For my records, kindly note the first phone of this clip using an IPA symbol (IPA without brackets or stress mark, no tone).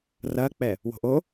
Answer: r